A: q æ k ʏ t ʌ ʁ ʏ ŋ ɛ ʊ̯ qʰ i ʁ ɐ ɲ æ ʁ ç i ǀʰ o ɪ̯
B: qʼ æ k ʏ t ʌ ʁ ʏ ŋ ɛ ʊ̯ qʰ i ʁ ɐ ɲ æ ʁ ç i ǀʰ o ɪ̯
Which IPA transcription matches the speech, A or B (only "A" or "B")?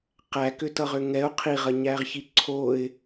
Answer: A